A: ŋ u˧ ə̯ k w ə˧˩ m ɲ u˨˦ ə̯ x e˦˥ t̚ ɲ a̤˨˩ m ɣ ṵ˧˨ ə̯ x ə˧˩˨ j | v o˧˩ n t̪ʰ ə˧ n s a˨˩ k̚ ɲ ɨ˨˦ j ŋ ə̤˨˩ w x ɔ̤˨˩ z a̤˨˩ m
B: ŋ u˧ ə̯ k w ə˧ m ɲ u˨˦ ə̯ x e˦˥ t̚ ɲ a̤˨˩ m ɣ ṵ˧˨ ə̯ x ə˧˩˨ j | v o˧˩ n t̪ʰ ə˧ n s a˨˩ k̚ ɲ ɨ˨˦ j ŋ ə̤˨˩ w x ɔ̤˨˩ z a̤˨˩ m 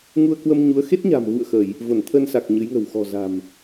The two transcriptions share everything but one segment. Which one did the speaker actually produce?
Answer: B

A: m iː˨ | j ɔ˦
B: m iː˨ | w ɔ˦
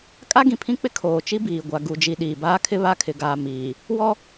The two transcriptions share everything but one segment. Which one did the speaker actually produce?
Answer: B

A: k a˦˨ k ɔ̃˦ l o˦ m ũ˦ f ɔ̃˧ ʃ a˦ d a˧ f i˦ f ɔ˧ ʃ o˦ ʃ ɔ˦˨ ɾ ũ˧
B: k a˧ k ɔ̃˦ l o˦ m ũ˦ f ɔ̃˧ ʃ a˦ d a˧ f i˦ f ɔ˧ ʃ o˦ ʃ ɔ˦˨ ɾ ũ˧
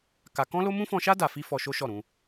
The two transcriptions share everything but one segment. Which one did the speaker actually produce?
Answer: B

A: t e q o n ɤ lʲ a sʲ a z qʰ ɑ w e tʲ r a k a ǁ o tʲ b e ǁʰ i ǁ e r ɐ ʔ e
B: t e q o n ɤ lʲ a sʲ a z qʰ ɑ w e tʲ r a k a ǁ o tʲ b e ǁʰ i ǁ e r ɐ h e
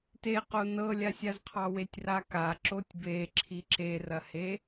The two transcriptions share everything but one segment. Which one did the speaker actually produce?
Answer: B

